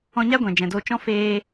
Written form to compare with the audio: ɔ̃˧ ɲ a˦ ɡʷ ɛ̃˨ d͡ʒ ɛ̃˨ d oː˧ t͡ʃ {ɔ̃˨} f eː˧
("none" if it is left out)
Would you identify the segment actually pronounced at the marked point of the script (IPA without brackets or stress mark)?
ɔ̃˦